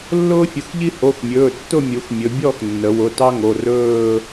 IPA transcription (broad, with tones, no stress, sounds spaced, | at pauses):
lː ʊː˥ fʲ ʊ˩˧˩ x ʎ i˥ h o˩˧˩ x mʲ ɵː˩˧˩ tː ʊ˥˧ mʲ u˩˧ x mʲ ɵ˩˧ bʲ ɔ˥˧ x nː ə˩˧ w ʊ˩˧˩ t ɑ˥ ŋ o˩˧˩ r ɵː˥˧